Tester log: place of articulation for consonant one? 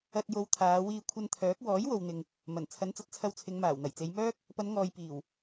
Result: alveolar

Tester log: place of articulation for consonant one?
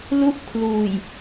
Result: alveolar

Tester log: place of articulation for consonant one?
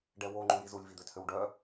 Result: retroflex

